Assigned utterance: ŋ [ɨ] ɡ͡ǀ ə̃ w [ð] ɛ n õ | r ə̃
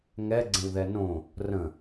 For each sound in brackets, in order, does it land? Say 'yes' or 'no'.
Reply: no, yes

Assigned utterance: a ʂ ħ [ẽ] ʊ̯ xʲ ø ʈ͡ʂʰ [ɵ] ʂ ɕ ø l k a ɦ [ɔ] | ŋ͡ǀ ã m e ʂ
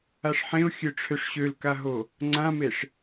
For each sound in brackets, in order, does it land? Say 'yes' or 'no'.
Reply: yes, no, no

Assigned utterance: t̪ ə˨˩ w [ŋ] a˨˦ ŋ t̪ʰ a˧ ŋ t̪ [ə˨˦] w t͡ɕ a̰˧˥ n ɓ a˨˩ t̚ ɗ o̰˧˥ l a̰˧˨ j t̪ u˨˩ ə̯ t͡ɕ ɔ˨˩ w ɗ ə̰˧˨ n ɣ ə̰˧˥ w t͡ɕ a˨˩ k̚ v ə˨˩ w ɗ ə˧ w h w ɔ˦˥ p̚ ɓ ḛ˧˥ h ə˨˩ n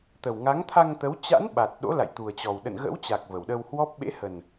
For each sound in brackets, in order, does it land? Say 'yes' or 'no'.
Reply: yes, yes

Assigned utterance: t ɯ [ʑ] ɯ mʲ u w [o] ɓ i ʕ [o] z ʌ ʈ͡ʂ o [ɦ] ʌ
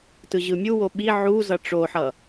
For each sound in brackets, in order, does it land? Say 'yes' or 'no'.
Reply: yes, yes, no, no

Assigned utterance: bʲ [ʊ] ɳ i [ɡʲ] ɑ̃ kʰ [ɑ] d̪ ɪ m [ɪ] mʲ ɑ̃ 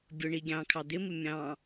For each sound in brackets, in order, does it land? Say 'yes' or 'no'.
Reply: yes, yes, yes, yes

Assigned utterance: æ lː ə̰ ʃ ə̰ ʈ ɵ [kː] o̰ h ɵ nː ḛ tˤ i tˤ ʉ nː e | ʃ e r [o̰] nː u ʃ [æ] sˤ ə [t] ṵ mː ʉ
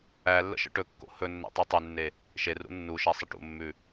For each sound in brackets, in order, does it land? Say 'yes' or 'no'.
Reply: yes, no, yes, no

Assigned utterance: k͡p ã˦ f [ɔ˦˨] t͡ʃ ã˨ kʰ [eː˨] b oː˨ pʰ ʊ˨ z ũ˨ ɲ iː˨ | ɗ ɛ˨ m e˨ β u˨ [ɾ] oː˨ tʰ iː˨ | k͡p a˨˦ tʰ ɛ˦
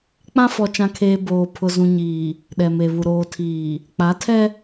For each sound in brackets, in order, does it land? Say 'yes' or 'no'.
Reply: no, yes, yes

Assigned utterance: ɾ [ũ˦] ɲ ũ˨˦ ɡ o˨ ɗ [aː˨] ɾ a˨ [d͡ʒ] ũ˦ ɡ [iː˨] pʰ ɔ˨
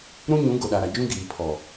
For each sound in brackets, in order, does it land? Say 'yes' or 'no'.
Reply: yes, no, yes, yes

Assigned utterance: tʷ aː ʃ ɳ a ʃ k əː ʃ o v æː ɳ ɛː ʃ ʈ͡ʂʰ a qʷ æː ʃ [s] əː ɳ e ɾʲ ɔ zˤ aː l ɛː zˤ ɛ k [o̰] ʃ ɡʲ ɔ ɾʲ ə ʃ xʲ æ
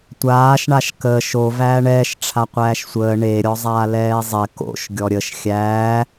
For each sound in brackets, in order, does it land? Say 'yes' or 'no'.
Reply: no, yes

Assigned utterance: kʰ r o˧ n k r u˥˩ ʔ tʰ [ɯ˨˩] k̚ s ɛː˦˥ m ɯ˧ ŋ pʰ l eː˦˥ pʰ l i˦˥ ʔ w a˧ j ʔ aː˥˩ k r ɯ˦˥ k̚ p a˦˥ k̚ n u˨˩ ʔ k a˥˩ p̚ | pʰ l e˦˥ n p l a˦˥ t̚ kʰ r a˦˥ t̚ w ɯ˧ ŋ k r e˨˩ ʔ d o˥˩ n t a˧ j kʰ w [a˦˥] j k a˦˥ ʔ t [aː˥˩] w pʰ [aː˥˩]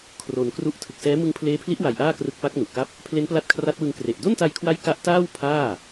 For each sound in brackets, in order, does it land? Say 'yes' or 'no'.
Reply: yes, yes, yes, yes

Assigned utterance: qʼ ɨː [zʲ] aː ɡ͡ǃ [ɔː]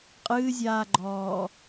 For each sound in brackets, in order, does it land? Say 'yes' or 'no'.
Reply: yes, yes

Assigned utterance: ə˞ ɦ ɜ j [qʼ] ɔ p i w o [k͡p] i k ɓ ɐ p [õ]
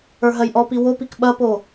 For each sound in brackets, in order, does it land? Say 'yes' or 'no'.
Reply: no, no, no

